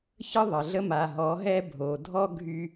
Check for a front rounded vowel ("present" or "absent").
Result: present